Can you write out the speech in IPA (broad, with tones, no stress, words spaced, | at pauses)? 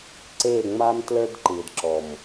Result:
ǀeː˦˨ŋ͡maː˦m tlə˞˦dǃɯː˨dǁɔ˨m